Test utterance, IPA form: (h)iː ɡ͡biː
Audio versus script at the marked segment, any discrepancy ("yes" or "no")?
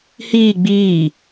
no